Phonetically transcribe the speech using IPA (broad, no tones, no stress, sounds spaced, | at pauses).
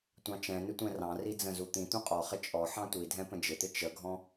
tʷ ɑ̃ t͡ʃ ɛ̃ n ɪ tʷ ɛ̃ r ɑ̃ r i d͡z ə̃ z u t̪ ĩ t̪ ũ qʼ ɔ χ ɪ t͡ʃʼ ɔ ħ ɑ̃ tʷ i dʱ ɛ̃ p ə̃ d͡ʒ ɪ t̪ ɪ t͡ʃ ə ɡʱ ɔ̃